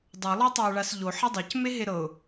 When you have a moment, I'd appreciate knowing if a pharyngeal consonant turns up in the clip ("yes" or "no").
yes